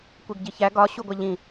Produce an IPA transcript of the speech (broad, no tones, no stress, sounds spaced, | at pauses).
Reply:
kʷ e ɡ ɟ i ç æ ɡ ɒ ɕ u ɡʷ æ ʎ ĩ